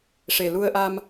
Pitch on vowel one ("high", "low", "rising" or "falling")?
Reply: low